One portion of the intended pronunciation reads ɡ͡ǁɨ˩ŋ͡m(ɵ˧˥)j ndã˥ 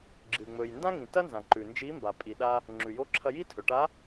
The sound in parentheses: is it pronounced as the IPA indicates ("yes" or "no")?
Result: no